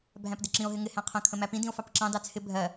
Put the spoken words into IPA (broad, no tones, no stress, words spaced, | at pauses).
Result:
bʱæ̃pdɪǁĩo̯ ɦɪŋɪ hæ̃qʰə̃ kʰə̃mæpĩ dĩo̯fɑpǁɑ̃ dɑt͡sʰɪ bʱɜ